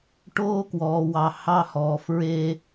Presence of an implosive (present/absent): absent